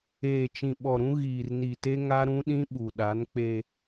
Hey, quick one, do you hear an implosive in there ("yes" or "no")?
yes